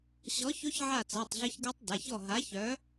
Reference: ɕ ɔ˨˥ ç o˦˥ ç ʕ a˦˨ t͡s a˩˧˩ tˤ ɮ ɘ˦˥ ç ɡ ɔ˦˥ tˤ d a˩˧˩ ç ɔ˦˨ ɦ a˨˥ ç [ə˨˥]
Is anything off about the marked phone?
yes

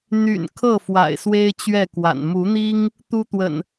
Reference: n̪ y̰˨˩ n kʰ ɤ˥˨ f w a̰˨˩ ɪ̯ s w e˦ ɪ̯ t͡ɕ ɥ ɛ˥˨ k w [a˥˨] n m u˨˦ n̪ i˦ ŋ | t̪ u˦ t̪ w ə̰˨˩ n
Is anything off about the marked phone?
yes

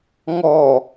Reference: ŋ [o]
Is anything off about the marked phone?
yes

